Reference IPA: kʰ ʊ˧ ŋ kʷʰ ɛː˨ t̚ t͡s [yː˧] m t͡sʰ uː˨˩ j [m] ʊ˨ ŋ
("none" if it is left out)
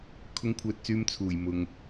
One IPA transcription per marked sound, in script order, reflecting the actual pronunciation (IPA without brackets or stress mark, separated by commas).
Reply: yː˧, m